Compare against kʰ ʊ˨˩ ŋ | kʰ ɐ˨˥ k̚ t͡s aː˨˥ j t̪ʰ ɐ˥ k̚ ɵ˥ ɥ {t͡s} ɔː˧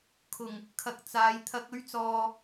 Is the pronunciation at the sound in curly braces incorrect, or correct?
correct